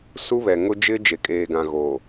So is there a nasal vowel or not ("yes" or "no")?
yes